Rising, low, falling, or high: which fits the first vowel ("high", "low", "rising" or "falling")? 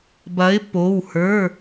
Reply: rising